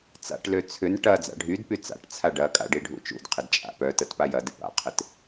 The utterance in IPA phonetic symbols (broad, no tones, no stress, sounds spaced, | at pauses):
t͡s a̰ ʈ l ø t͡sʰ ʏ n ʈ ɐ d͡z a̰ ɖʱ y d p y t͡s a̰ ʈ t͡sʰ a ɖ ɐ kʼ a̰ ɖ i ɖʱ ṵ t͡ʃ ṵ d qʰ ɪ d t͡ʃʼ a̰ p œ t ə t p a j ɐ d ɪ p a̰ qʰ ɪ t